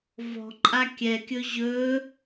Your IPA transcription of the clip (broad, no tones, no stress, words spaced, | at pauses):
vɔ̤ǃʼa kʲɛkʲɵ ʑɵ